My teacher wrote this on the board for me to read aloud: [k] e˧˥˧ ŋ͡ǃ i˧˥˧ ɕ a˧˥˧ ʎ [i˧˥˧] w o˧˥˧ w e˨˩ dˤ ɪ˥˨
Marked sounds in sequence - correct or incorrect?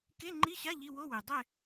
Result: correct, correct

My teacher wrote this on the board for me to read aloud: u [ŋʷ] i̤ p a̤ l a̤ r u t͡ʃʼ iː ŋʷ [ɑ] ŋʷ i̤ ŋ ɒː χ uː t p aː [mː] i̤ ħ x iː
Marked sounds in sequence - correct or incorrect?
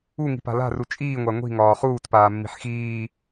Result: incorrect: ŋ, incorrect: a, correct

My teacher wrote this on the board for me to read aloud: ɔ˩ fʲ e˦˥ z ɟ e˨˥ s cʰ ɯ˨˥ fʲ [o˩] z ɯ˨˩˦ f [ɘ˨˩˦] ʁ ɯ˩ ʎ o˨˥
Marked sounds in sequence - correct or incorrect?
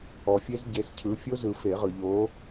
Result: incorrect: o˦˥, incorrect: e˨˩˦

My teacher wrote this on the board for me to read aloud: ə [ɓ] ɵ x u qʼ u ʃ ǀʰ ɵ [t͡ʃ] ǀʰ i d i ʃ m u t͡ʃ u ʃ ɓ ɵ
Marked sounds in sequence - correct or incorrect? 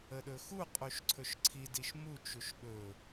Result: incorrect: ɗ, incorrect: ʃ

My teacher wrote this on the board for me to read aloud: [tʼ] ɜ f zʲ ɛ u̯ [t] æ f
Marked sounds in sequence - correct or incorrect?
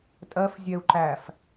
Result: correct, incorrect: ǃ

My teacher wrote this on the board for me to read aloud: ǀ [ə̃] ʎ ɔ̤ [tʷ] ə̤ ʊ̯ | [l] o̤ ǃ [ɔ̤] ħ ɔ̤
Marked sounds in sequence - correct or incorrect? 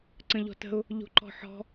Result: correct, incorrect: t, incorrect: ʎ, correct

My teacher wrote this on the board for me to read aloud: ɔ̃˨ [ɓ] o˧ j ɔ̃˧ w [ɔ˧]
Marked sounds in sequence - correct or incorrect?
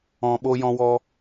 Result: correct, correct

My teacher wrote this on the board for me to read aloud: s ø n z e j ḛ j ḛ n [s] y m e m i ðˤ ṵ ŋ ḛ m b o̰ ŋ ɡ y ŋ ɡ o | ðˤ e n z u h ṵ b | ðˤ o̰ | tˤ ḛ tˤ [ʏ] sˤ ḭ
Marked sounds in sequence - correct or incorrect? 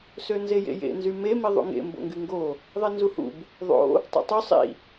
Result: incorrect: z, incorrect: y

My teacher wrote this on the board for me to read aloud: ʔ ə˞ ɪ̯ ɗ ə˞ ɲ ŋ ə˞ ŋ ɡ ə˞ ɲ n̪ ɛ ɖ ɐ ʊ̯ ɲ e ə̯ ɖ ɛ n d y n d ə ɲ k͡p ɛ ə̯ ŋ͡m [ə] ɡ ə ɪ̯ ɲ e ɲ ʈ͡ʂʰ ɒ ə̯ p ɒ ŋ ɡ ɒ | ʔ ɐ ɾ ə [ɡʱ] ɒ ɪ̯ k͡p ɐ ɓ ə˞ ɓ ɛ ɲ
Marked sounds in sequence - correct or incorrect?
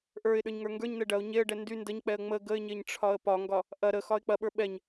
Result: correct, incorrect: x

